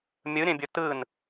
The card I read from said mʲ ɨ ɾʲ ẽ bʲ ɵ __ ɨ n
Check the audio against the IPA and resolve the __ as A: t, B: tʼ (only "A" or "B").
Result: A